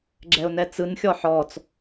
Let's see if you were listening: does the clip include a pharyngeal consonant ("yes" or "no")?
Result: yes